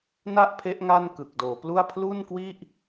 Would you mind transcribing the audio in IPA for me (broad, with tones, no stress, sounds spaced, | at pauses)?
n a˥˩ ʔ pʰ e˦˥ ʔ ŋ a˥˩ n k ɯ˨˩ k̚ d oː˩˦ p l u˥˩ a̯ pʰ l u˥˩ n k w i˥˩ ʔ